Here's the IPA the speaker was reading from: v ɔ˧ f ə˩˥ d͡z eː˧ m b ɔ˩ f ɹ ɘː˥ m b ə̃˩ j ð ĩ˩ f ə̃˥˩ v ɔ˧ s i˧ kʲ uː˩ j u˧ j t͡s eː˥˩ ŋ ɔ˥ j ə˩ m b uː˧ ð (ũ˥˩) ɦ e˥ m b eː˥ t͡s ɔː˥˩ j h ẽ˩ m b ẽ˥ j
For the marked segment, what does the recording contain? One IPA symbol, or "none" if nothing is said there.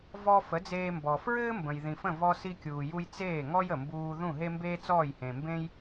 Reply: ũ˥˩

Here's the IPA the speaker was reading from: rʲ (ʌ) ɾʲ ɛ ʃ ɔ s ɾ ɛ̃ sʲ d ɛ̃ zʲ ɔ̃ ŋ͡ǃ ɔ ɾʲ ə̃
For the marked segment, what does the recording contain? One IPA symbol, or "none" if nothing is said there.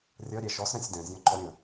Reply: ʌ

